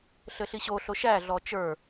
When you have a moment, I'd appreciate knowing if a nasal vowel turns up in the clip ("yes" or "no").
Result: no